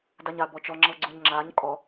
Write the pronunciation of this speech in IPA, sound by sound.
d a ɲ a b ɔ t͡ʃ ɔ ŋ͡ǁ ɤ ɡ͡ǀ u ɲ ŋ͡ǁ a ɲ kʼ ɔ

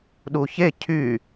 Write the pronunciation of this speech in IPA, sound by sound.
ɗ u ç e cʰ y

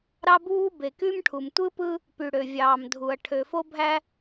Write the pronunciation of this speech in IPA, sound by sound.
ɾ ɑ˦ b uː˦ b e˨ k y˦ m ʈʰ u˨ m tʷ ɯ˦ p ɯ˦ | p y˨ ɽ ø˨ vʲ ɑː˨ m dʱ u˨ ɐ̯ ʈʰ ø˨ f o˦ bʱ æ˦

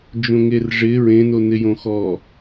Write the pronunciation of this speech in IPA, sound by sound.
d͡ʒ õ ŋ e r ʐ ɪ ɹ ẽ n o n ɪ j õ x ɔ

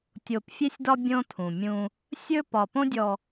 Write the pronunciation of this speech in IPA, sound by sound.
tʲ o˨ p fʲ e˦ sʲ d ɒ˦ bʲ õ˦ tʰ ũ˨ mʲ ũ˦ | sʲ ɵ˦ p ɒ˨ p õ˦ dʲ ɔ˨

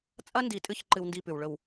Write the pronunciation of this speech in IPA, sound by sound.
t͡sʼ ɐ˦ n d i˨ tʼ ɨ˦ ç ǃ ɨ˦ w n d i˦˨ p ʉ˨ w ɭ ɵ˨ w

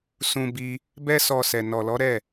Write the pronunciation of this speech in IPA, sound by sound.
s ũ˧ b i˧ | b ɛ˦ s ɔ˧ s ɛ˨ n ɔ˨ l ɔ˨˦ ɾ ɛ˦˨

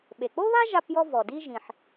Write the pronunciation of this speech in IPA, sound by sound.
ɓ e˩ k͡p o˥ β a˥ ʒ a˦ p j ɔ˦ v ɔ˩ d i˦ ʒ ĩ˩ ħ

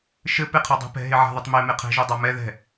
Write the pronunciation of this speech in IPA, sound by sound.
ʃ ɘ p e qʰ ɐ dˤ ɛ̤ p ɛ̤ ɦ e ʕ a̤ ð ɘ tˤ m e m e qʰ ɛ̤ ʒ u dˤ a m ɛ ð ɛ̤

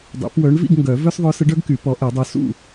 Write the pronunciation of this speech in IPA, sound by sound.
dˤ ḛ˨˩˦ p w œ˨˥ ɳ v ḭ˥˨ ɡ ŋ ɡ œ˨˩˦ v œ˦ s ðˤ œ˨˥ s ə˨˥ ɖ œ˦ ɡ k y˨˩˦ p ɔ˨˥ ʔ ɛ˨˩˦ dˤ o˨˥ s ṵ˥˨

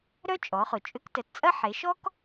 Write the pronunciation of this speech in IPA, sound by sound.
ɾ œ˥ t͡ʃʼ ɔ˩˧ χ ʊ˩ t͡ʃʼ ʏ˧˥ k t ə˩˧ t t͡sʼ ɐ˥ ħ e˩˧ ʃ ɔ˥ k

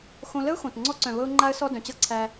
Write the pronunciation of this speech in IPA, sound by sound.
x õ˧ l ə˦ ʊ̯ x õ˨ t ŋ͡ǀ ɔ˧ ǀ œ̃˨ β ɤ˧ ʊ̯ ŋ͡ǃ a˧ ə̯ s ɔ˦ d œ̃˨ t͡ɕ ɤ˦ ǀʰ æ˧

